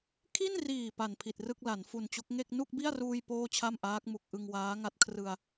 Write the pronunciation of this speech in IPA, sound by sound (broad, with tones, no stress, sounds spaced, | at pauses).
kʰ i˥˩ n r iː˨˩ p a˨˩ n pʰ i˨˩ t̚ r ɯ˥˩ k̚ l a˩˦ n f u˨˩ n t͡ɕ o˦˥ k̚ ŋ e˥˩ k̚ n u˥˩ k̚ b i˥˩ a̯ r uː˧ j p oː˥˩ t͡ɕʰ a˥˩ m ʔ aː˦˥ k̚ m u˨˩ k̚ ʔ ɯ˧ ŋ w aː˦˥ ŋ a˦˥ t̚ kʰ r ɯ˧ a̯